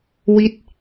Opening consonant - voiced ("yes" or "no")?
yes